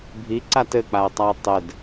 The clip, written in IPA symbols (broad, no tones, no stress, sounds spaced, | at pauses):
bʱ i ǀ a t ɘ k͡p a ə̯ tˤ a ə̯ tˤ ɘ d